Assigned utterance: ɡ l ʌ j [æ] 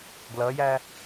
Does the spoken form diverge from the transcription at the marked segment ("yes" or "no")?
no